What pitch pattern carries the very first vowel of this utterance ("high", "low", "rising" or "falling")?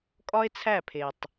high